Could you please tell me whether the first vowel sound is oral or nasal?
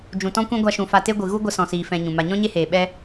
nasal